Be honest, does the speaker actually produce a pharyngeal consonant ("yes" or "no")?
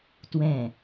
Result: no